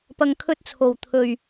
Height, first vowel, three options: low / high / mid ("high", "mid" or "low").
low